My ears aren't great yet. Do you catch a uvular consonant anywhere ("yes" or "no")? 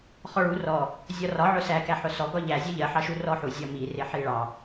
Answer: yes